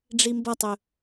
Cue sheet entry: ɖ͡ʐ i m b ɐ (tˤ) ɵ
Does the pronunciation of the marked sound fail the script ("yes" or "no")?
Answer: no